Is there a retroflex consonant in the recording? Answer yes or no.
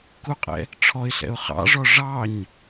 yes